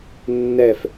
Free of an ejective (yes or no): yes